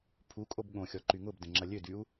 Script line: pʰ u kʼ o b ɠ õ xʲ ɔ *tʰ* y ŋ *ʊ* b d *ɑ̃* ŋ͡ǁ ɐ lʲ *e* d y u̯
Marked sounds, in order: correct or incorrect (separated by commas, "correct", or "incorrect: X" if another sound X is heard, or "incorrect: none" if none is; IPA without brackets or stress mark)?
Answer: incorrect: ǃ, correct, incorrect: ə̃, incorrect: ø